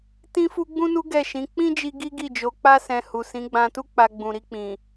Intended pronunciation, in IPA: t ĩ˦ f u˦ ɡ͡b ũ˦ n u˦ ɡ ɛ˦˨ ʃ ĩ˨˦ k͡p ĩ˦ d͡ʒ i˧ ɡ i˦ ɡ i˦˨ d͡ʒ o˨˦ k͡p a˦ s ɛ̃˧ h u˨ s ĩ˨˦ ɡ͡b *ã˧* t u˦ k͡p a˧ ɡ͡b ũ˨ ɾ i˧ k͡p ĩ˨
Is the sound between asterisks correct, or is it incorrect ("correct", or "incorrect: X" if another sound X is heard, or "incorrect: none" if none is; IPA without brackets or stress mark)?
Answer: correct